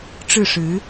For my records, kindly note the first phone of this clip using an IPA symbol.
ʈ͡ʂ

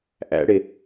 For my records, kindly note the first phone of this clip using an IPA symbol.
ʔ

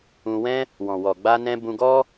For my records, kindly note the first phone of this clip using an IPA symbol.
ũ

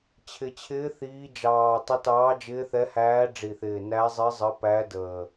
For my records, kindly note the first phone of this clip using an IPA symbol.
t͡ɕʰ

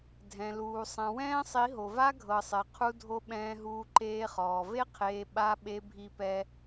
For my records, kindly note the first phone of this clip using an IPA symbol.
dʱ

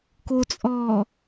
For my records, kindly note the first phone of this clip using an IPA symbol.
k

